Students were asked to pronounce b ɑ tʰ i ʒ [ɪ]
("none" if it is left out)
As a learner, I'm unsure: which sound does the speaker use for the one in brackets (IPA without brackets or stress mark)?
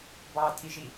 i